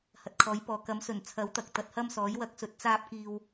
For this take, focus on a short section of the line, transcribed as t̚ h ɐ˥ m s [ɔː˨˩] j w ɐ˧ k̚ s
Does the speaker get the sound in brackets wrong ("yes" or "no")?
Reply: yes